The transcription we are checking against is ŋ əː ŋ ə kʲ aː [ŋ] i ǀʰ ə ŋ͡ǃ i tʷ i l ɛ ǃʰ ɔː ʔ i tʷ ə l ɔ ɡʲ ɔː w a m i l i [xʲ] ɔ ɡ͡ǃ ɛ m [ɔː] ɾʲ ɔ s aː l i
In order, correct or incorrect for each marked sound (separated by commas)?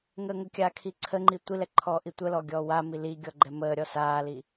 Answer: incorrect, incorrect, incorrect